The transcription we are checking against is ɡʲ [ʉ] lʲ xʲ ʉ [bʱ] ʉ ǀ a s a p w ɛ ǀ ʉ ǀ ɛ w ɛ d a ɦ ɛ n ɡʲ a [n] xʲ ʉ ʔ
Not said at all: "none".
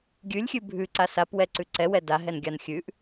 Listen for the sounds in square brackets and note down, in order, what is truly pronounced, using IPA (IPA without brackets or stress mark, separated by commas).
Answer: ʉ, bʱ, n